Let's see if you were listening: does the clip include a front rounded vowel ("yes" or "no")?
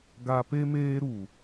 no